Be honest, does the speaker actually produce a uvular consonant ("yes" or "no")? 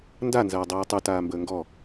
no